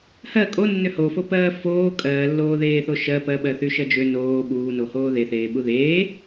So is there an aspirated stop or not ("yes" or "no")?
no